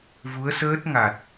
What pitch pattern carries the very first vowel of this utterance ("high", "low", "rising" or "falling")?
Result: rising